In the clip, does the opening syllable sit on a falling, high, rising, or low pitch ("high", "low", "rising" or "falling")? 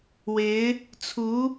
rising